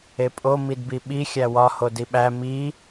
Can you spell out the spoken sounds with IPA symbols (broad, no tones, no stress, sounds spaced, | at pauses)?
e pʼ o m i d b i ɓ i xʲ æ w ɒ h o d i ɓ æ m i